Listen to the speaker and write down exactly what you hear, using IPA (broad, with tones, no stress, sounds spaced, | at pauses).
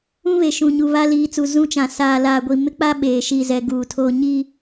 ũ˦ β e˨ ʃ ũ˨ ɲ u˨ β a˦ l iː˨ t͡s u˨ z ũ˦ t͡ʃ ã˨ s aː˨ l aː˨ ɡʷ i˨ m ɪ˦ k͡p a˦ ɓ eː˨ ʃ i˦˨ z ɛ˦ ɡ uː˨ tʰ oː˦ ɲ i˦